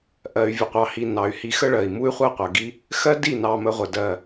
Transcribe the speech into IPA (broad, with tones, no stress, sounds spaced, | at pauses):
ʔ ɜ˨ y̯ vʲ ə˨ qʷ ɑ˨ h i˨ n ɑ˨ y̯ h i˧ x ə˦ ɭ ɜ˨ i̯ m u˦ y̯ χʷ ɜ˦ qʷ ɜ˨ ɡ i˦ | x ɜ˦ d i˦˨ n ɑ˧ m ə˧ ʁʷ ə˨ d ɜ˨